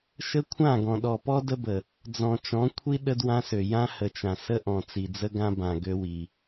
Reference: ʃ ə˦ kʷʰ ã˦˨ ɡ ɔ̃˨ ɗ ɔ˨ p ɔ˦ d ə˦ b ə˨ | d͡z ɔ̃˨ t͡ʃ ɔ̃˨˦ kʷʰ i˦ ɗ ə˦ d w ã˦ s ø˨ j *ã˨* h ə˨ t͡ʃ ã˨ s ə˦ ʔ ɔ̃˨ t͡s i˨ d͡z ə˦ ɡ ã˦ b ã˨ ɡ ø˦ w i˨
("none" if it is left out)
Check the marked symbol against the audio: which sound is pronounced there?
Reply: ã˦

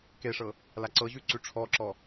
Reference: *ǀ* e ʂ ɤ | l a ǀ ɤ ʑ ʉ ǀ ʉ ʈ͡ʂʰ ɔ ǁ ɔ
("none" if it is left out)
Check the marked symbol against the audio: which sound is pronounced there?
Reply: k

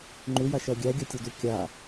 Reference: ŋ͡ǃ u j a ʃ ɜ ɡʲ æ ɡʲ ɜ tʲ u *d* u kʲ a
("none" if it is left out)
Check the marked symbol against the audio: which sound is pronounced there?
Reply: d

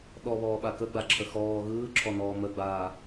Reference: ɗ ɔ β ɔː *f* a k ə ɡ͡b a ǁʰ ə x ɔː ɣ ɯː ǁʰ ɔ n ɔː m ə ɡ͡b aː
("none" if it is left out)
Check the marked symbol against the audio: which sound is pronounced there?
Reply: ɓ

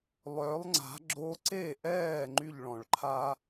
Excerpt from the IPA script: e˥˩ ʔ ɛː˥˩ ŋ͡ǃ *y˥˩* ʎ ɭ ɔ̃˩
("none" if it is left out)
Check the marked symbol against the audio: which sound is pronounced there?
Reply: y˥˩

